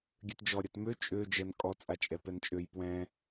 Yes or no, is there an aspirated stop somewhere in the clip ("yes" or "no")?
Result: no